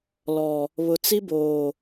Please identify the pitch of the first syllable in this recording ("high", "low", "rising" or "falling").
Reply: low